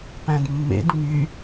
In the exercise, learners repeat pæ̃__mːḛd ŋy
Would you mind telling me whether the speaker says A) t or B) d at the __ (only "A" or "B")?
B